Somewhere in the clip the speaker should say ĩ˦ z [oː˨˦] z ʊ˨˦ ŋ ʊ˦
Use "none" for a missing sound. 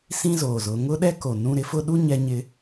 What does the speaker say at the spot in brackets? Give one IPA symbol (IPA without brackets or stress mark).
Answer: oː˨